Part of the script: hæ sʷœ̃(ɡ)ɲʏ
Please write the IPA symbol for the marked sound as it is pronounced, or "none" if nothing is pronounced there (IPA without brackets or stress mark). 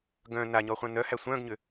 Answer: ɡ